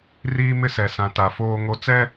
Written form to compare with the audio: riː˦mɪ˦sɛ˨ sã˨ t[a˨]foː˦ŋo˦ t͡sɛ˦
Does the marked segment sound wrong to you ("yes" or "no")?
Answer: no